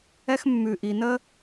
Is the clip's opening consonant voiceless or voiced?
voiceless